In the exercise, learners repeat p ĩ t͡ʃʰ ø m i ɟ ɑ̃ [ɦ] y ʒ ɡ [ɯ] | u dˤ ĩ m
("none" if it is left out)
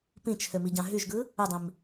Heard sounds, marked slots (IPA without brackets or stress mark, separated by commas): ɦ, ɯ